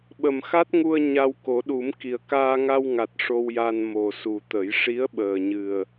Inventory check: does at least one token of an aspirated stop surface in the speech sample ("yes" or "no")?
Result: no